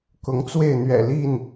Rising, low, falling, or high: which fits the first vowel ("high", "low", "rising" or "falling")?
rising